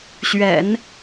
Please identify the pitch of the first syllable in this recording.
low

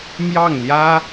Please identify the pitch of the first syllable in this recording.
falling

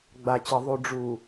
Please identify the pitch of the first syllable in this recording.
low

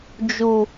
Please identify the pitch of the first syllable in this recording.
low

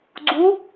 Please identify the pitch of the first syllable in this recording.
rising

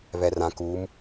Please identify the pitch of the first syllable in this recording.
low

